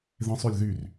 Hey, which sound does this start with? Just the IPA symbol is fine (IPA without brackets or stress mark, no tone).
ð